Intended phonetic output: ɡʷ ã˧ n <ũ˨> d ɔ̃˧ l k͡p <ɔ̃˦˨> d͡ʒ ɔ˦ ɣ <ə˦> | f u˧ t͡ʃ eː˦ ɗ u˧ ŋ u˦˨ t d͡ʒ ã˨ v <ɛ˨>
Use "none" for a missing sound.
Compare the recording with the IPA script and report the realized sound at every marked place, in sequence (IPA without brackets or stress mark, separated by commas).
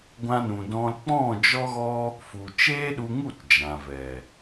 ũ˨, ɔ̃˦˨, ɔ˦, ɛ˨